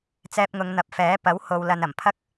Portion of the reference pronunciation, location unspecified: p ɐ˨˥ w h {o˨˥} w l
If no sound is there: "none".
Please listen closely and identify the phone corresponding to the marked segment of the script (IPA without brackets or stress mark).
o˨